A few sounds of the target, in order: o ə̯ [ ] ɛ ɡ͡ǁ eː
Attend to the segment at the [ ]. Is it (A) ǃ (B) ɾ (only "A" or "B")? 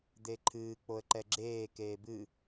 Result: A